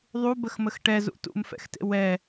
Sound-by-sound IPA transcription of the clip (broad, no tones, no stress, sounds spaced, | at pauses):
ðˤ u b ə x m ə x ʈ ɛ z ṵ t ṵ m f ɛ̰ x t ḛ w ɛ